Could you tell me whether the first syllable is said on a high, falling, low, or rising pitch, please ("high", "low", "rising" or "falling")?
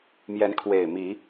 rising